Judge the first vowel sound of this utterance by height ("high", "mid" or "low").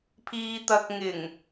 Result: high